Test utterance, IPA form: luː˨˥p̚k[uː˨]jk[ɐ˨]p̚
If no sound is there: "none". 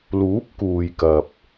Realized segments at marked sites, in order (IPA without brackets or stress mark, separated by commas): uː˨, ɐ˨